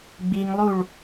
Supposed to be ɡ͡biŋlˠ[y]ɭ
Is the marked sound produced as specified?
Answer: no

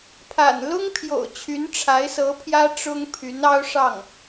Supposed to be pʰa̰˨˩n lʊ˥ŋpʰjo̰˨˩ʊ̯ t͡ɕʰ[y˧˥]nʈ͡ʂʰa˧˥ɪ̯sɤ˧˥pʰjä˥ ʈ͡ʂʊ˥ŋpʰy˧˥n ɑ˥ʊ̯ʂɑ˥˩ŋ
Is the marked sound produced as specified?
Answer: yes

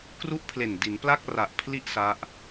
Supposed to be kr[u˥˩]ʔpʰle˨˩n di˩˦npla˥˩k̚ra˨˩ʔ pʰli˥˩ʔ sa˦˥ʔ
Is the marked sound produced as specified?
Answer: yes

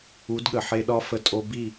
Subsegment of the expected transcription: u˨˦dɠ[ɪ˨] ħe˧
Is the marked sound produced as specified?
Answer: no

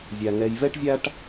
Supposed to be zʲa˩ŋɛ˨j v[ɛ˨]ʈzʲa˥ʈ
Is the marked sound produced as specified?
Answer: no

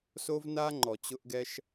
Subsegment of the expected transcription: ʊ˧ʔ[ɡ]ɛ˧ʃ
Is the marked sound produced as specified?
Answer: yes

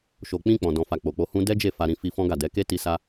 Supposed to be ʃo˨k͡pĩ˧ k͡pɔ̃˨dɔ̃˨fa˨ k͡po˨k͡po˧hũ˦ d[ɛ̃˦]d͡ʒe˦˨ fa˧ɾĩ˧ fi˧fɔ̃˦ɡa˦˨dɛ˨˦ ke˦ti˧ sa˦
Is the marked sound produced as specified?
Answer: no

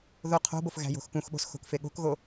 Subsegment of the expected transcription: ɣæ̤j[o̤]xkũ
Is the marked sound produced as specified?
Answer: yes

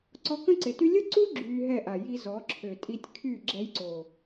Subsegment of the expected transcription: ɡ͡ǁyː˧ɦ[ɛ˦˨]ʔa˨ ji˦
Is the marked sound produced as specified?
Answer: yes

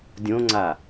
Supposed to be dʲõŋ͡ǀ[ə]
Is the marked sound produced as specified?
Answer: no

